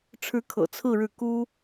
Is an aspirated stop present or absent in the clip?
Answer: present